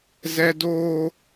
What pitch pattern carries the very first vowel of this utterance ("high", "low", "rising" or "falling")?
high